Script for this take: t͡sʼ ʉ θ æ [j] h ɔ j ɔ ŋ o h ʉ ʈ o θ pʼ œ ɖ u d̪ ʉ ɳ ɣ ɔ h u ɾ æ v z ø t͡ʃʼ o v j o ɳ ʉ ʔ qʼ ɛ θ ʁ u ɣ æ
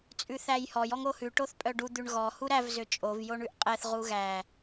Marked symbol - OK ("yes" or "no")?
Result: yes